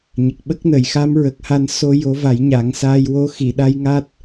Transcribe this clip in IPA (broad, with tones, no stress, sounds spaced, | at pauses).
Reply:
ɲ ə˨˩ k̚ ɓ ə˦˥ k̚ n ə˨˩˨ j x a˧˥ m ɹ ə˨˩ k̚ h a˧ n s o˧ j o˧˥ v a˨˩˦ j ɲ a˨˩˦ ŋ s aː˧ j w o˧˥ x i˨˩˨ ɗ a˧˥ j ŋ a˦˥ t̚